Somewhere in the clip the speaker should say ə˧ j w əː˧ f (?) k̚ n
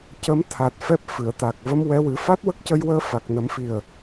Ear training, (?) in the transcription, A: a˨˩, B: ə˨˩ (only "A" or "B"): A